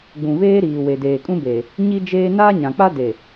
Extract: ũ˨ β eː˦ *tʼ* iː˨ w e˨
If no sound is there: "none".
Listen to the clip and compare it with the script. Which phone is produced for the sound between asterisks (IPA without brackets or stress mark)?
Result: ɾ